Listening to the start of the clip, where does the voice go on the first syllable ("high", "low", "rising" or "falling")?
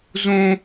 high